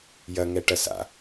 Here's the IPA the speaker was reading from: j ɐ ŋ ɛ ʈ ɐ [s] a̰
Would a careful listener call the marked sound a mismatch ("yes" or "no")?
no